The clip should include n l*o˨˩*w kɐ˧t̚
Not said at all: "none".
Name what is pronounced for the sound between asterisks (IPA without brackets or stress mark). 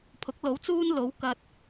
o˨˥